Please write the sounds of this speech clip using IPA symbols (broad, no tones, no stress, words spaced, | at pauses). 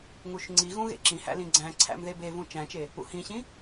ŋuʃŋ͡ǀiɣũ ɣḛǁĩhæ̰ lĩɡ͡ǀæ̃ǀʰæ̰m ðebevũ t͡ʃæ̃t͡ʃe | ṵhĩɕĩ